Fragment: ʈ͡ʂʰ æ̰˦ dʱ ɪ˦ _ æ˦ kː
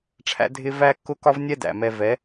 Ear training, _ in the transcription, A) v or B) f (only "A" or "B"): A